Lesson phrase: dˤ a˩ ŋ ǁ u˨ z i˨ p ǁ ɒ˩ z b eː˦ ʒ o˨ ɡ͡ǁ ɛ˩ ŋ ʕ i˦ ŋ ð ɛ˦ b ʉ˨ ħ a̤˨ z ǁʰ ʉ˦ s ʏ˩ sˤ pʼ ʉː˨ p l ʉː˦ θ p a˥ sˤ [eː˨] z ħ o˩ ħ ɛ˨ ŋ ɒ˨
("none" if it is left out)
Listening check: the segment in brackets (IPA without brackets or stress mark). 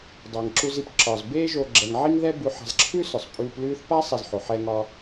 e˨